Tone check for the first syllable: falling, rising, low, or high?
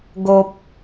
low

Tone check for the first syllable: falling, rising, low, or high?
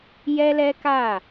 high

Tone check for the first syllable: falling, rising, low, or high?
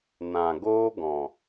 low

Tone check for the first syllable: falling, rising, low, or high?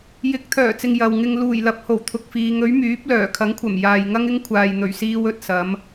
rising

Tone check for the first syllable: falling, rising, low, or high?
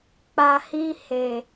low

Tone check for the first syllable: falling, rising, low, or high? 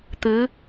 rising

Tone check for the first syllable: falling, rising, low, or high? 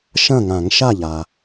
falling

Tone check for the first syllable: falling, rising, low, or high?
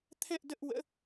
falling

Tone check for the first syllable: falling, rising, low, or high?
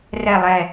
low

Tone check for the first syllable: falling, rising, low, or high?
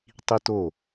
high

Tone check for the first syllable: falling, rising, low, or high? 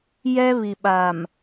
high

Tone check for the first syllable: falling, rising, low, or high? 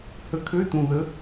rising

